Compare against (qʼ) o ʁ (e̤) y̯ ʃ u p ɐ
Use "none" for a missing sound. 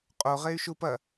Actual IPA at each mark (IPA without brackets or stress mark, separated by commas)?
qʼ, e